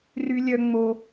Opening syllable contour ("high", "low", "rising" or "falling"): high